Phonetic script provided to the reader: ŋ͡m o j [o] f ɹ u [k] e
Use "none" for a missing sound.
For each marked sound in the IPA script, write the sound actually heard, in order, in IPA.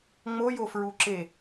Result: o, ǁ

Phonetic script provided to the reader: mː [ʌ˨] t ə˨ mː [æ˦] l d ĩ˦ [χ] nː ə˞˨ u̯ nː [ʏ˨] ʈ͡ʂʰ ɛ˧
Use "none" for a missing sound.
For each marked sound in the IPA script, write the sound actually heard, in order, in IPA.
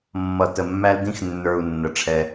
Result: ʌ˨, æ˦, x, ə˨

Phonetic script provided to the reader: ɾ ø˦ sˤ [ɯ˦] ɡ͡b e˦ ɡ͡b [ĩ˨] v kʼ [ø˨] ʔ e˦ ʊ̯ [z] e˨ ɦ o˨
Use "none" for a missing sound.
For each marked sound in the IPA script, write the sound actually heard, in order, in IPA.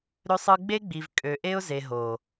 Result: ɯ˦, i˨, ø˨, z

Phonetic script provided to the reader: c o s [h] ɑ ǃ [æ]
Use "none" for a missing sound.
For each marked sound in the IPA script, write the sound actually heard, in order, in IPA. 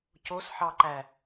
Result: ħ, æ

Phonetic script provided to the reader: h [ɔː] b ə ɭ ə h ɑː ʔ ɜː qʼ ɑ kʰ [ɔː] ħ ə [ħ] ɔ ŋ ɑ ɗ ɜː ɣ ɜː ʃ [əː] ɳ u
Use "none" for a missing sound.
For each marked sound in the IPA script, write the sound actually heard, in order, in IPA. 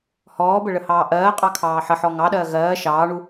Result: ɔː, ɑː, ħ, ɑː

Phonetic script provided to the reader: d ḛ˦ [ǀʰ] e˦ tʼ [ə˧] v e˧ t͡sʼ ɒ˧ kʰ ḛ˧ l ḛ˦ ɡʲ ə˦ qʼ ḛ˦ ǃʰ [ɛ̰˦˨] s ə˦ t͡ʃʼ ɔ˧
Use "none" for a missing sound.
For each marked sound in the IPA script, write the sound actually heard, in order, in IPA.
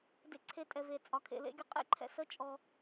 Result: ǀʰ, ɛ˧, ɛ̰˧

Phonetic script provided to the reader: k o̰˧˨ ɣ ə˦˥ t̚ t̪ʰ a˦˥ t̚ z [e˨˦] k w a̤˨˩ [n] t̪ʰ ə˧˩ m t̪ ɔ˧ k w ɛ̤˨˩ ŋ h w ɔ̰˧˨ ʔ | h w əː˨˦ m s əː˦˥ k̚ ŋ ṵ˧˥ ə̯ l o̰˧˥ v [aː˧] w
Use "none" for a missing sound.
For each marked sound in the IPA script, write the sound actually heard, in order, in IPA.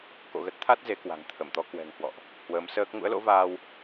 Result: e˨˦, ŋ, aː˧

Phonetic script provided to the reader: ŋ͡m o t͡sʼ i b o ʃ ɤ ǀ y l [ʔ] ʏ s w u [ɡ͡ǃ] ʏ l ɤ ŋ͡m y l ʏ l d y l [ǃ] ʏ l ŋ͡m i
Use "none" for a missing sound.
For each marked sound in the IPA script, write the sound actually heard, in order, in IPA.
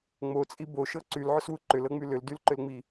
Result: ʕ, ǃ, ǃ

